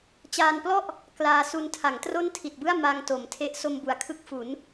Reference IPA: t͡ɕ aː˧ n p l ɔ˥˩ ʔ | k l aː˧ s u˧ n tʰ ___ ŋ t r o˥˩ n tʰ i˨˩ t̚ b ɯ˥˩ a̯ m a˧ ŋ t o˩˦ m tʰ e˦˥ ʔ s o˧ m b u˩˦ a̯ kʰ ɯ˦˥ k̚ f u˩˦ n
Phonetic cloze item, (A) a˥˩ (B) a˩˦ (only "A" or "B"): B